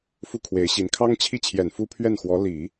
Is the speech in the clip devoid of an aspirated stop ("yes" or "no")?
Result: no